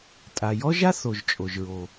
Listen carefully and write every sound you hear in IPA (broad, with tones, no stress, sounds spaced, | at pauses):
tʼ a˩ j ɔ˥ ʒ a˥ θ o˩ ʒ t͡ʃʼ o˩ ʒ ɹ o˩